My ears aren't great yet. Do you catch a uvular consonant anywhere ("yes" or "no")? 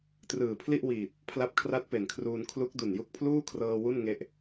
no